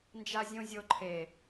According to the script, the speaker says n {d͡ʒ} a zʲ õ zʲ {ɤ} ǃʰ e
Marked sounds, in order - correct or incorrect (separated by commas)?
correct, incorrect